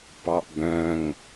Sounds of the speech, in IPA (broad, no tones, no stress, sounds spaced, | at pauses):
p ɑ ʔ b œ̃ ŋ